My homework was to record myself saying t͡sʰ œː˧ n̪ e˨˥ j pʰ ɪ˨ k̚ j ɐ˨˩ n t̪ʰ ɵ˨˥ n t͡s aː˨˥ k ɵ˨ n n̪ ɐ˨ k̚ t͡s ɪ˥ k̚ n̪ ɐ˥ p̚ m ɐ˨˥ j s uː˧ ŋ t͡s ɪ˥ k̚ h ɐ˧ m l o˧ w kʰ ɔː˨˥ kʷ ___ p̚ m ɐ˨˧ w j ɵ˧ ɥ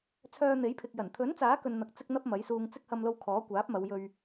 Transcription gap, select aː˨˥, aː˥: aː˨˥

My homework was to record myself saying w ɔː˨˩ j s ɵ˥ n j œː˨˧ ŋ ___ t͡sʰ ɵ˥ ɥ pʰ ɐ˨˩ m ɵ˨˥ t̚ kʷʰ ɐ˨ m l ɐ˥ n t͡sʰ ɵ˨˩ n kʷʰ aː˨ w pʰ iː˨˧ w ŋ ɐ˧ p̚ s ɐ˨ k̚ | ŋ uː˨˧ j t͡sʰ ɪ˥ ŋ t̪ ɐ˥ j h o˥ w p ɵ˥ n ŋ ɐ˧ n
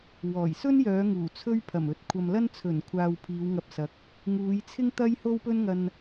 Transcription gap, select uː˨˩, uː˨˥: uː˨˩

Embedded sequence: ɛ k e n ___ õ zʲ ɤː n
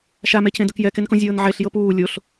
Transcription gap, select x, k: k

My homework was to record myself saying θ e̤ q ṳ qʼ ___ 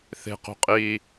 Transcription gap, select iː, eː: iː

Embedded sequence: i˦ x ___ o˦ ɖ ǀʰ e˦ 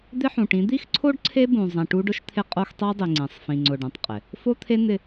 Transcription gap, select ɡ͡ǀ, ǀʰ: ǀʰ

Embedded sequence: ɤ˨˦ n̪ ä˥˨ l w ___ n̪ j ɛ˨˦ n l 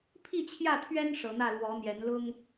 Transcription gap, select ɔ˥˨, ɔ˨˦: ɔ˨˦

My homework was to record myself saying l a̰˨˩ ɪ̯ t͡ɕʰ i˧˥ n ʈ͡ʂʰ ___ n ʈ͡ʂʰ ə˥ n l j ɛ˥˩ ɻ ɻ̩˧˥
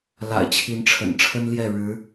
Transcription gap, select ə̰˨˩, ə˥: ə̰˨˩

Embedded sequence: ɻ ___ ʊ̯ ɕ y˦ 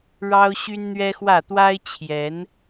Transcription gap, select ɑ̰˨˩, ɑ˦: ɑ˦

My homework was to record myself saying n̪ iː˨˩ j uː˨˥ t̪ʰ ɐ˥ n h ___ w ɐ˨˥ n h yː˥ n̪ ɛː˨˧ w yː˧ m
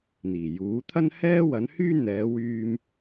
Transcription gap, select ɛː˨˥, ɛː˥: ɛː˥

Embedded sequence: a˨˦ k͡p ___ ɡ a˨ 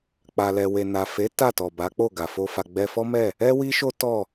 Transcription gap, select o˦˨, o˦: o˦˨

